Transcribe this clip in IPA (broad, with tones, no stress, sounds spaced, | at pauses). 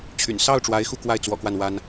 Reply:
t͡ɕʰ y̰˨˩ n s ɑ˥˩ ʊ̯ ʈ͡ʂ w a˧˥ ɪ̯ x u˥˧ k w a˥˩ ɪ̯ t͡s w ɔ̰˨˩ k w a˥˩ n w a˥ n